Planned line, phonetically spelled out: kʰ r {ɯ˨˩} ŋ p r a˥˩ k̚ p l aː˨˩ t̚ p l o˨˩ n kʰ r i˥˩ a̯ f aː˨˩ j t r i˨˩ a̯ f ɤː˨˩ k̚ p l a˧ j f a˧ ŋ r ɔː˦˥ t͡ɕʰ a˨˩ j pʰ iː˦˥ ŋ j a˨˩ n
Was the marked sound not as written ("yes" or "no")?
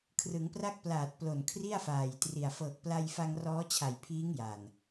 yes